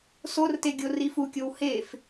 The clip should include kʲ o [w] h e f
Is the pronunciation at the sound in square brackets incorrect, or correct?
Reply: correct